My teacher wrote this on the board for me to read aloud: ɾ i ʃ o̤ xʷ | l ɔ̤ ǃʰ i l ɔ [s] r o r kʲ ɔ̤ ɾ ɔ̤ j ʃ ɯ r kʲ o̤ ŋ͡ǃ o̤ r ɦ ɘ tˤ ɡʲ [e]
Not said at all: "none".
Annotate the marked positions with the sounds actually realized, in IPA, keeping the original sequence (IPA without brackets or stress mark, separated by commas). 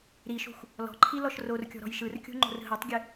ʃ, ɘ